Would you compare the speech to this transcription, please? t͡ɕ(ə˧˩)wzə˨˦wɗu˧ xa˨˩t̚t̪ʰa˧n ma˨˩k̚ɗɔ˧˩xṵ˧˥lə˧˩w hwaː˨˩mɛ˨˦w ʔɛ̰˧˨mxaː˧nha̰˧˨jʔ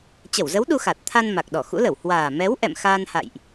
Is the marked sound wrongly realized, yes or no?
no